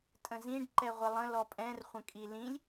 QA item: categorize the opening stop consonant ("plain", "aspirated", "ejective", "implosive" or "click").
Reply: ejective